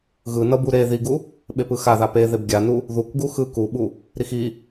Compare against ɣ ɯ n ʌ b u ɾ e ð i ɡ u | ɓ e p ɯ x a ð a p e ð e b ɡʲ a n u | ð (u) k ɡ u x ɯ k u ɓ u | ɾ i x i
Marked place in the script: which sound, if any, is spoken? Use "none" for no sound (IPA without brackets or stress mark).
u